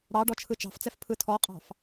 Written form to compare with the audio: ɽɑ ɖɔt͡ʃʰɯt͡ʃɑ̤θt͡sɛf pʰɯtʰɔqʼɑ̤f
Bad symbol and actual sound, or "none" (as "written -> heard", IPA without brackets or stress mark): θ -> f